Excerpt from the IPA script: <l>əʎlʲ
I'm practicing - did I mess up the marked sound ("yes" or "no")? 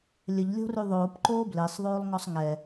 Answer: yes